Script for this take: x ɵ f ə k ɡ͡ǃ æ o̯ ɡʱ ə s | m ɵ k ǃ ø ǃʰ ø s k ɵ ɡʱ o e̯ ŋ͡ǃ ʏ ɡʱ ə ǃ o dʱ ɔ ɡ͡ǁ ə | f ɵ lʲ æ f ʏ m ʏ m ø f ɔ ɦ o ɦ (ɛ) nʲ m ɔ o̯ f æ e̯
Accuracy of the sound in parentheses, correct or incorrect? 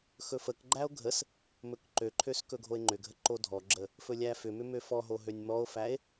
incorrect